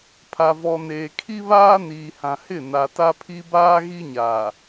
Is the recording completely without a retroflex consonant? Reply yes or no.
yes